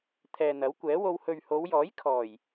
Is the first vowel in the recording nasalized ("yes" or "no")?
no